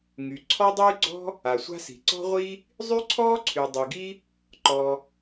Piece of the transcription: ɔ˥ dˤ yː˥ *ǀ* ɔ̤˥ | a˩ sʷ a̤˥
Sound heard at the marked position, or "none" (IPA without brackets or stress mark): ɡ͡ǀ